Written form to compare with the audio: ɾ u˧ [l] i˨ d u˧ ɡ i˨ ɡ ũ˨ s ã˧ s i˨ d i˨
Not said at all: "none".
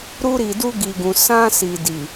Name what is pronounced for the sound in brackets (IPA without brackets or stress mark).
ɾ